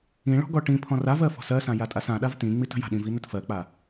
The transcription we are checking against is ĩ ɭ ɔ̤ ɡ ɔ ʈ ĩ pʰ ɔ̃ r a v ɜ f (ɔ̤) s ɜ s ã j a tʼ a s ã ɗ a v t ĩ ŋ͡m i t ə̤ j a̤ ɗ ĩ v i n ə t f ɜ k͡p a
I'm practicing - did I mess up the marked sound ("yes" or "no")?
no